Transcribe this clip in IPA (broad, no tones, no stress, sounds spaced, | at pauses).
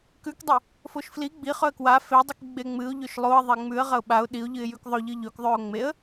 k ʉ k dˤ e | f o ʃ f l i ɡ͡b i χ ɵ ə̯ k w a f e dˤ i k ɡ͡b e ŋ͡m ɨ ʊ̯ ʎ ɵ ʃ lˠ o ə̯ ðˤ e ŋ͡m ʉ ə̯ ʁ ɐ ʊ̯ ɓ a ʊ̯ ɗ i ʊ̯ ʎ ɨ ɪ̯ j ʉ k ðˤ ɵ ʎ ɨ ʎ ɵ k ðˤ ʉ ʊ̯ ŋ͡m e ə̯